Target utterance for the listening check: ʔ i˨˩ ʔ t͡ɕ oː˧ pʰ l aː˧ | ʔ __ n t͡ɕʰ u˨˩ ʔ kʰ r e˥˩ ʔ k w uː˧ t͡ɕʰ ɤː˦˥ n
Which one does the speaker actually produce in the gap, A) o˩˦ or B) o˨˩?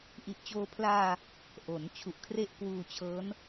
A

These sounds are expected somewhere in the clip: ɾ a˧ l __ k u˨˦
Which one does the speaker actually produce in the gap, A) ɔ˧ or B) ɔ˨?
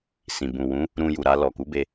B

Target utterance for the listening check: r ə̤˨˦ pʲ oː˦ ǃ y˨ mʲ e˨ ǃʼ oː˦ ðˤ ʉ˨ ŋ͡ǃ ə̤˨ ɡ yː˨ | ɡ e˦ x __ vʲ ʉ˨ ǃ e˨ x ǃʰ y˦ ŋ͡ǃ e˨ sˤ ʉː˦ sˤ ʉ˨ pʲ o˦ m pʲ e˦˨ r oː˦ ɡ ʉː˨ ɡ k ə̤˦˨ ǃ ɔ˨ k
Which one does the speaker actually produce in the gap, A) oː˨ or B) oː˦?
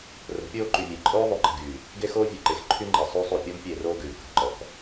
B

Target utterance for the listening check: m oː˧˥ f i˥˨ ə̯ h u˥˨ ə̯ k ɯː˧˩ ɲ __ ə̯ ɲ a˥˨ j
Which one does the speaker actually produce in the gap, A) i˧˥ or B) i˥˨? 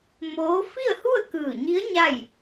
A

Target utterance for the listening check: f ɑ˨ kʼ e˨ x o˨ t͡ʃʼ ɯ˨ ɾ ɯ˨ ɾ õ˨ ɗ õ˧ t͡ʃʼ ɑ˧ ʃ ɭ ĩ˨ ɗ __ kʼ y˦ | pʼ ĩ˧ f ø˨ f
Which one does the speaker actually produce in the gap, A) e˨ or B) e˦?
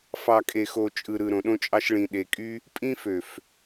A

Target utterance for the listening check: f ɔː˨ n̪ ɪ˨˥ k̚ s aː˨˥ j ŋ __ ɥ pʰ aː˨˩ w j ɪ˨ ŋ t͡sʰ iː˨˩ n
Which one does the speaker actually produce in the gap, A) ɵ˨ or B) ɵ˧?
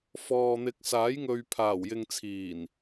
A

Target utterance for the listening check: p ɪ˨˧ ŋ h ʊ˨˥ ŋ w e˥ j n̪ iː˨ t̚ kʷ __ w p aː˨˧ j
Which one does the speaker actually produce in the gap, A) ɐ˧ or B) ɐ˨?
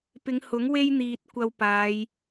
A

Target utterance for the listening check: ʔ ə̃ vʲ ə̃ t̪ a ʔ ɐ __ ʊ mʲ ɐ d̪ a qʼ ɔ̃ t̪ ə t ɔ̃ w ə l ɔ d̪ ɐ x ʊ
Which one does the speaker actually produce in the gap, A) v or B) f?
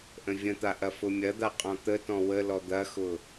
B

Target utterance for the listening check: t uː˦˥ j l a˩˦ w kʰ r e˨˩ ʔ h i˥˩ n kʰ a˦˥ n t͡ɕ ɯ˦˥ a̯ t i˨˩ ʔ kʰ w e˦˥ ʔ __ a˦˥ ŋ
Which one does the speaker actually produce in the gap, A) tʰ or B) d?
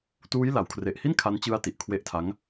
A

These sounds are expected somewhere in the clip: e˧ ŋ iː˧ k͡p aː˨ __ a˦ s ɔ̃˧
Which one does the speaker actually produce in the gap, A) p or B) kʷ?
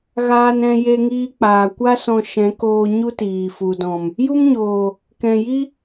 B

